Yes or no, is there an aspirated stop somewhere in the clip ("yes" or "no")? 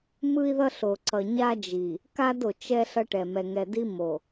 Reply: no